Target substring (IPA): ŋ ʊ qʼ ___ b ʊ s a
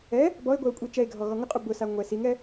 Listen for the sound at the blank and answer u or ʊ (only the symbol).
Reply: u